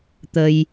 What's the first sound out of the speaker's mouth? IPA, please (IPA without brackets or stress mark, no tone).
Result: t̪